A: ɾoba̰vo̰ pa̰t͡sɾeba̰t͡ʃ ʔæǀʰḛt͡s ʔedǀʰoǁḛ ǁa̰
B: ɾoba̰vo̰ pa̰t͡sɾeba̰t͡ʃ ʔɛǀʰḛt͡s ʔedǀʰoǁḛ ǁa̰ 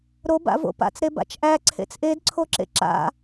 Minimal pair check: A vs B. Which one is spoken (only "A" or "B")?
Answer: A